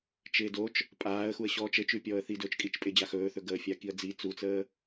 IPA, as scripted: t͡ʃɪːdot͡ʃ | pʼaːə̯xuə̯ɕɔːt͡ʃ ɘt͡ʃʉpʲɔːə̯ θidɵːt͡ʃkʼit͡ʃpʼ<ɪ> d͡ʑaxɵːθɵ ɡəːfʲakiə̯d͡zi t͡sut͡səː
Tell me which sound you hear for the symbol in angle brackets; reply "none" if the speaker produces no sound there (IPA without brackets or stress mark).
ɪ